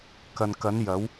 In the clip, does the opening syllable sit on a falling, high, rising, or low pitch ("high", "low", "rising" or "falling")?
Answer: low